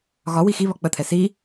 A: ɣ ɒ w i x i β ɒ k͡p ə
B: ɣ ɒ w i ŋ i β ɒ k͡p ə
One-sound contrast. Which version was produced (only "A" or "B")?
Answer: A